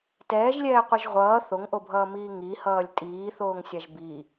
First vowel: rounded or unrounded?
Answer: unrounded